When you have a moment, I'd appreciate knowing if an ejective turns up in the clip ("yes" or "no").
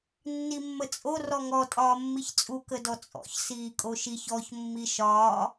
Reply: yes